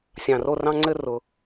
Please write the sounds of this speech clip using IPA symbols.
sʲ ɑ̃˨˩ r o˥˩ r ɑ̃˥˧ ŋ͡ǀ ɘ˥˧ r ʊ˩˧

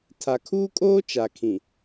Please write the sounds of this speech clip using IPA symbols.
tʰ a˨ kʰ uː˦ kʼ oː˦ t͡ʃ a˨ kʰ ĩ˨

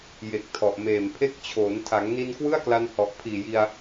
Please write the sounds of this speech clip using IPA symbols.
j e˨˩ k̚ tʰ ɔ˨˩ ʔ m eː˨˩ m pʰ e˦˥ k̚ t͡ɕʰ oː˩˦ n tʰ a˩˦ ŋ n i˧ n k w ɯ˥˩ a̯ k l a˧ n h ɔ˨˩ ʔ pʰ iː˨˩ j i˧ a̯

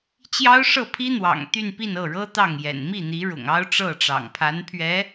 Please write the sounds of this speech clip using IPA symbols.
t͡ɕ j ɑ˥ ʊ̯ ʂ ɤ˥˩ pʰ i˥ n̪ w ɑ̰˨˩ ŋ t̪ y˥˧ n p i˥˧ n ɤ˥˩ ɻ ɤ˥ t̪ ɑ˥˩ ŋ j ɛ̰˨˩ n m i˥˩ n̪ i˧˥ ɻ ʊ̰˨˩ ŋ ɑ˥ ʊ̯ ʈ͡ʂ ɤ˥˩ ʈ͡ʂ ɑ̰˨˩ ŋ pʰ a˧˥ n pʰ ɥ ɛ˧˥

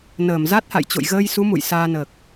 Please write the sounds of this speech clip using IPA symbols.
n əː˧˩ m z a˦˥ t̚ h a̰˧˨ j t͡ɕ o̰˧˨ j ɣ əː˧ j s u˨˦ m ṵ˧˨ j s aː˧ n əː˨˩ k̚

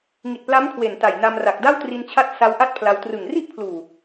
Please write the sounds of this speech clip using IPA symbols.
ŋ i˨˩ t̚ p l a˦˥ m kʰ w e˨˩ n t a˨˩ j n a˧ m r a˨˩ k̚ d a˥˩ w t r i˧ n t͡ɕʰ a˦˥ t̚ s a˦˥ w ʔ a˥˩ t̚ pʰ l a˧ w t r ɯ˨˩ ŋ r i˥˩ ʔ pʰ l uː˨˩

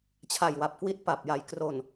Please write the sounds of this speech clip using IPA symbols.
t͡ɕʰ a˨˩ j w a˨˩ p̚ k w i˦˥ t̚ p a˨˩ p̚ j a˨˩ j k r o˨˩ n

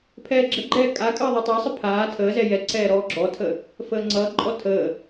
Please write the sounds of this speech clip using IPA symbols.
pʰ ɛː ɡ͡ǁ ə ɡ͡ǃ ɛː kʼ a kʼ əː ðˤ ɛ tˤ ɛ sˤ ə pʰ aː tʰ əː z ɛ j ɛ ǀ ɛː ɾ ɔː ɡ͡ǁ ɔ tʰ ə | f əː ŋ͡ǀ ʌː ǃʼ ɔ tʰ əː

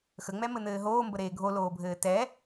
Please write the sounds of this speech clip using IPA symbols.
x ə ŋ͡m ɛ m ɘ n̪ ɘː ɦ oː m b ə ɾ eː ɡʱ o l oː bʱ ɘː t ɛ

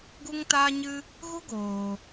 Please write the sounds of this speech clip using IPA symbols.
ɡ u˦ ŋ t aː˦ ɲ ɨ˦ | ɣ u˦ ɡ oː˧

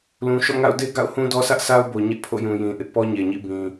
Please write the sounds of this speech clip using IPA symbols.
l ũ˨ ʃ ɔ̰˦˨ ŋ a̰˦˨ ʊ̯ d e˦ ɡ a̰˦˨ ʊ̯ h ũ˦ d ɔ˦ s ä˦ ʔ sʰ a˦ ʊ̯ b o˨ ɲ ɛ˦ ʔ pʰ o̰˦˨ j ũ˨ j ĩ˨ ʔ ɪ˦ ʔ p ɔ˦ ɲ e˨ ɲ ḭ˦˨ b ĩ˨

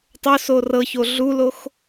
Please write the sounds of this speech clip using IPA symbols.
tˤ o s o r ɤ ç o ɮ u l o x

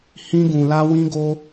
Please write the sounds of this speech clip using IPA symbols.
h ĩ˦ ɡ ũ˧ l a˦ w ĩ˦ ɡ o˦

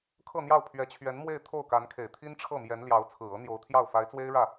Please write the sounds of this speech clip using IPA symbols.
kʰ ɤ˥˧ n̪ j ɑ˥˩ ʊ̯ pʰ ɥ ɛ˧˥ t͡ɕʰ ɥ ɛ˧˥ n m w e˥˧ ɪ̯ t̪ʰ o˥˩ ʊ̯ k a˧˥ n kʰ e˨˩ ɪ̯ t̪ʰ i˥ n ʈ͡ʂʰ ɤ˥˩ m j ɛ˧˥ n l j ɑ˧˥ ʊ̯ t͡sʰ ɹ̩˨˩ ɤ˧˥ n̪ j o˧˥ ʊ̯ t̪ʰ j ɑ˥˩ ʊ̯ f a˧˥ ɪ̯ t͡s w e˥ ɪ̯ ɻ ä˥˩

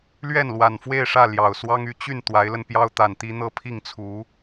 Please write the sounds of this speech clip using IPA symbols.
l ɥ ɛ˥˩ n l w a˨˩ n f w e˥˧ ɪ̯ ʂ ä˥˩ l j ɑ˨˩ ʊ̯ s w ɑ˥ ŋ y˧˥ t͡ɕ y˥˩ n t̪ w a˧˥ ɪ̯ l ə˧ n p j ɑ˥ ʊ̯ t̪ a˨˩ n t̪ i˥ n̪ ɤ˥˧ pʰ i˥˩ ŋ t͡sʰ u˧˥

